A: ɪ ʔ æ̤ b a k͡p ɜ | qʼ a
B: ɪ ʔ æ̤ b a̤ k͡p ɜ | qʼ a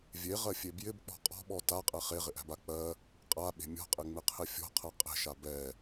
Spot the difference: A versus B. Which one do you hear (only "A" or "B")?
A